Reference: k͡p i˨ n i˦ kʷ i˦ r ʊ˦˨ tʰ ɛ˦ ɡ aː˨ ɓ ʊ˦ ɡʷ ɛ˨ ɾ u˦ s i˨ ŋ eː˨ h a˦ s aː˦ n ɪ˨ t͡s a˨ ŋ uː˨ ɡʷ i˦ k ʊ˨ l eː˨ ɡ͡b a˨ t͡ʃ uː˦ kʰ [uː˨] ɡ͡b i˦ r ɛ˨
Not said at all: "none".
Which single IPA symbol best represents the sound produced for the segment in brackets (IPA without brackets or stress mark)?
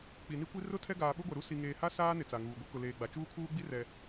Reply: uː˦